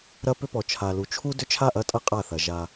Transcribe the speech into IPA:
ɾ ɐ˦ p ʏ˦ p ɔ˨ t͡ʃʰ a˨ l u˨ t͡ʃʰ u˦ d ʏ˦ t͡ʃʰ a˦˨ ʔ ɐ˦ tʼ ɐ˦ qʼ a˦˨ θ ɐ˨ ʒ a˦

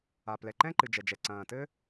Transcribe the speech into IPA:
a˩ p l ɛ˩ ǃ ɛ̃˥ ǃ ɨ˩ d͡ʒ ɛ˩ d͡ʒ ɛ˩ ǀ ɐ̃ː˩ t ɘː˥

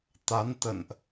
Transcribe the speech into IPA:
t̪ a˨˦ n t̪ ə̰˧˨ n ʔ

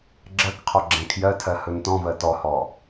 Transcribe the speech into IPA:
ɡ͡ǁ ɜ k qʰ ɔ ɡ͡ǁ ɛ̃ kʰ j ɜ tʰ ɜ h ɵ n t ɔ̃ v ɜ t ɔ h ɔ

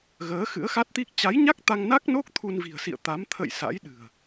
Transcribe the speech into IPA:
ɣ əː˨˦ x ɨ̰˧˥ ə̯ x a˦˥ t̚ t̪ i˦˥ k̚ t͡ɕ a˨˦ j ɲ a˦˥ k̚ t̪ a˧ ŋ n a˦˥ k̚ n o˦˥ k̚ t̪ʰ u˧ n v i̤˨˩ ə̯ s ḭ˧˨ ə̯ t̪ a˨˦ m t̪ʰ ə̰˧˨ j s a̰˧˥ j ɗ ɨ̤˨˩ ə̯

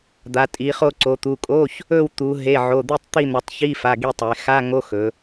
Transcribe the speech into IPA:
d̪ a˩˧ tʼ i˩˧ χ o˦˨ ǀ o˩˧ t̪ u˩˧˩ kʼ o˧˥˧ ç | ɵ˦˨ w t̪ u˩˧ ɦ e˩˧˩ ʕ o˩˧˩ d̪ i˦˨ tˤ t̪ i˦˨ n̪ ɵ˩˧ tˤ ç i˧˥˧ f a˩˧˩ ɡ i˦˨ tˤ e˩˧ x a˧˥˧ ŋ o˧˥˧ x ɵ˩˧

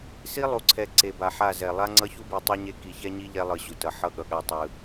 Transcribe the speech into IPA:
s i˦ lˠ u˨ ǀʰ ɛ˨ ǀ e˨ b a˨ ħ a˦˨ z ɛ˨ lˠ a˦ ŋ͡ǀ ʌ˦ ç u˦ b i˨ tˤ ɯ˦ ɲ e˦ k i˨ ç ɛ˦ ɲ i˦ ʎ ɛ˦ lˠ ɯ˨ ɕ u˨ t ʌ˨ ħ ʌ˦ ɠ ʌ˨ ɠ a˦ tˤ ɯ˦

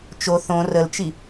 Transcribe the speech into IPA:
t͡ʃ o θ õ r ə l t͡ʃ i

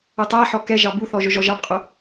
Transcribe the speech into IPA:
ʊ tˤ æ ħ ɔ k ɛ ʒ ɑ b u θ ɔ ʒ ʊ ʒ ɔ ʒ ɑ b qʼ ʊ

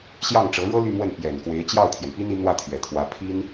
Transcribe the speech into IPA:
ɕ j ɑ˥˩ ŋ ʈ͡ʂ ɤ˧˥ ɻ ɤ˥ l y˥˧ m w ə˥˩ n p j ɛ˨˩ n k w e˧˥ ɪ̯ t͡ɕ j ɑ˥˩ ʊ̯ t̪ʰ j ɛ˩ n p i˥ n i˧˥ n̪ w ä˥˩ t̪ʰ ɥ ɛ˨˩ t̪ʰ w ä˧˥ pʰ i˥ n

